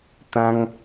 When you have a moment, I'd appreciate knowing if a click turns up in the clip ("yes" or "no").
no